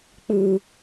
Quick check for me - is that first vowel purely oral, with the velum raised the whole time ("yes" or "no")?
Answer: yes